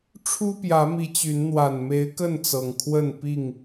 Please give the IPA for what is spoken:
ʈ͡ʂʰ u˦ p j ä˨˦ m i˨˦ t͡ɕ y˨˦ n n̪ w a˨˩ n m e˨˦ ɪ̯ k ə˥˨ n t͡s ɤ˨˩ ŋ kʰ w ə˥˨ n p i˥˨ ŋ

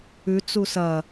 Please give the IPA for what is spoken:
ʉ t͡s u s ɐ

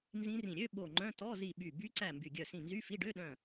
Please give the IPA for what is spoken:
n z ĩ˦˥ r ĩ˧˩ ɾʲ ø˧˥˧ ɓ o˧˩ ŋ͡ǃ œ̃˧˥˧ t ɔ˧˥˧ z i˧˩ ɓ y˧˩ b y˦˥ ǀ æ˧˩ m b y˧˩ ɡʲ œ˧˩ s ĩ˧˩ n z y˧˥˧ f i˧˥˧ ɖ ø˧˥˧ ɗ œ̃˧˩

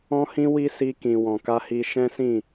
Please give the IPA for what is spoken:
ɔ̃˦ h ĩ˦ w i˦ s i˧ k ĩ˨ w ɔ̃˨ k a˧ h i˧ ʃ ɛ̃˦ s ĩ˦˨

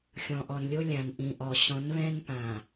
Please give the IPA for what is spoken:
xʲ ɔ̃˨ ʔ ɔ˨ n lʲ o˦ lʲ ã˨ n ʔ ĩ˨ ʔ ɔ˨ ɕ ɔ̃˨˦ n β ɛ̃˦ n p ã˨

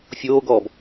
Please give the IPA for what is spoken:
fʲ oː ɡ ɔː b

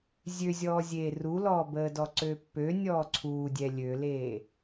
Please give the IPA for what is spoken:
zʲ ø zʲ ɔː zʲ eː r u l ɔː b əː d ɔ ǀ ø pː ø nʲ ɔː ǀʰ uː dʲ ɛ lʲ ø l eː

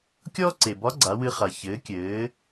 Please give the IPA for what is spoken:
kʲ ɔː˥ ǀ e˩ b ɒ˧˥ ɡ͡ǀ a˩˧ w ɨ˧ χ a˩ ç ɘː˩˧ kʲ ɘː˩˧

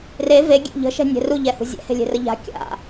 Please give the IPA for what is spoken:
r e v e ɡʲ ɛ̰ ʎ ə̤ ʃ ɛ̤ nʲ ɛ̤ r u ʎ ɛ h ṳ zʲ ɛ̰ h e̤ lʲ e̤ r ə ʎ a̤ kʲ a̰

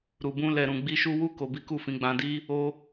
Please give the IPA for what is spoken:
ɾ u˧ b ũ˦ l ɛ˧ ɾ ũ˧ ɡ͡b i˦ ʃ u˦ w u˦ k o˧ b i˦ k u˦˨ f ĩ˨˦ ɡ͡b ã˧ d i˦ | o˦

